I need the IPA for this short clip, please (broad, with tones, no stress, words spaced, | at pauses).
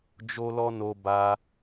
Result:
d͡ʒo˦lɔ˦no˧ ba˦